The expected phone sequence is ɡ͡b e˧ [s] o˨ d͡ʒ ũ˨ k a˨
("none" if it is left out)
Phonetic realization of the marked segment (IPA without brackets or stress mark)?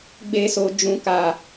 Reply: s